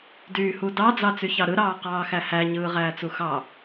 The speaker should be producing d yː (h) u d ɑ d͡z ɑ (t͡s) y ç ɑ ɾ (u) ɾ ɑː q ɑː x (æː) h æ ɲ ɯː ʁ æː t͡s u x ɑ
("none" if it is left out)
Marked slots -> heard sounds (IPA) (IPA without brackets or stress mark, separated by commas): h, t͡s, ɯ, æ